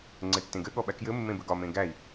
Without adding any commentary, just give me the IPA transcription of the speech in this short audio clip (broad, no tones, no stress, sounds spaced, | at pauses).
ŋ͡ǀ ɘ tː ẽ ɡ ɘ ɠ ɔ ɓ æ k j ɘ mː ẽ b ɘ ɡ ɒ m ẽ ɡ æ i̯